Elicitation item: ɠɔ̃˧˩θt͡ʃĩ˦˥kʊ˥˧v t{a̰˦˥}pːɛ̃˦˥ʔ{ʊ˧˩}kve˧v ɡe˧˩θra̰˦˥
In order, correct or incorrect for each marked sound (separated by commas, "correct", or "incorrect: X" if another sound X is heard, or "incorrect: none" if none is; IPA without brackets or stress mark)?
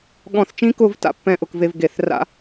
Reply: correct, correct